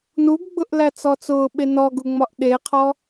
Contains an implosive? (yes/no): yes